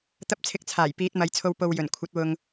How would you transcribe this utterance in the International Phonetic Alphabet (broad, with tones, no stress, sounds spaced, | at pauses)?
t̪ ɐ˧ p̚ t͡sʰ ɪ˨˥ k̚ t͡sʰ aː˨˩ j p iː˨˥ t̚ m ɐ˨˧ j t͡sʰ o˧ w p o˨ w j ɵ˨˩ n kʷʰ ɐ˨˥ t̚ w ʊ˨ ŋ